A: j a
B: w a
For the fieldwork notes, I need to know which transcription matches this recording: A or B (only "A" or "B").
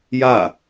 A